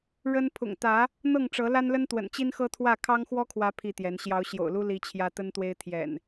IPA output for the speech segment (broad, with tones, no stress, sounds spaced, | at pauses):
ɻ ə˦ n pʰ ʊ̰˨˩ ŋ t̪ ä˨˦ | n̪ ɤ˥˨ ŋ ʈ͡ʂ ɤ˨˦ l a˦ n l ə˦ n t̪ w ə̰˨˩ n t͡ɕ i˦ n x ɤ˦ t̪ʰ w ä˥˨ kʰ ɑ˦ ŋ x w ɔ˦ kʰ w ä˨˦ pʰ i˥˨ t̪ j ɛ˨˦ n ɕ j ɑ˨˦ ʊ̯ ɕ j o̰˨˩ ʊ̯ l u˦ l i˦ t͡ɕʰ j ä˦ t̪ ə˦ n t̪ w e˦ ɪ̯ t̪ʰ j ɛ̰˨˩ n